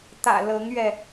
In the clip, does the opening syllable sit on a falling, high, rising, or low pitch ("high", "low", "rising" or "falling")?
low